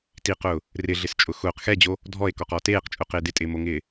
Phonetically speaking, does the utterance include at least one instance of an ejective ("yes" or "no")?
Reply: yes